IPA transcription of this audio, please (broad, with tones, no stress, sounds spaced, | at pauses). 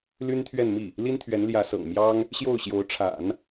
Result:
l y˥ n t̪ʰ ɥ ɛ˥˧ n m i˥˩ | l i˥ n t̪ʰ ɥ ɛ˧˥ n l j ä˧˥ s ɤ̰˨˩ ŋ m j ɑ˥ ŋ | ɕ j o˥˩ ʊ̯ ɕ j o˧˥ ʊ̯ ʈ͡ʂʰ a̰˨˩˦ n